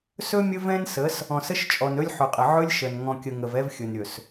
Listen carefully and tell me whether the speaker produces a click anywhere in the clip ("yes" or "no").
no